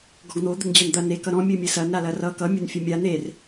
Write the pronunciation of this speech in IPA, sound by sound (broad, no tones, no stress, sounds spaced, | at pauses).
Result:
ɡ ɔ ɡ n̪ o d̪ ə n d͡ʑ œ n d̪ ɐ n e k ʌ ɾ ɔ̃ mʲ ɵ mʲ ɛ s ɐ n ɾ a l ɐ r ʌ k ʌ mʲ ə n fʲ ɛ mʲ a n̪ e r